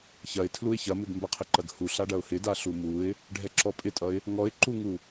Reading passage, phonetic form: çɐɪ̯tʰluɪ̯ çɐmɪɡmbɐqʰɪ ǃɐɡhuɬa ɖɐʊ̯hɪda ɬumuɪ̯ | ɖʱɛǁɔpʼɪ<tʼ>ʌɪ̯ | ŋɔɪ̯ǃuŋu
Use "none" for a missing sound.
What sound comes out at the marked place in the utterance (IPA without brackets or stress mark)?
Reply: tʼ